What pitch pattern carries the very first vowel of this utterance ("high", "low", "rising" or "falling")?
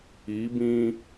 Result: rising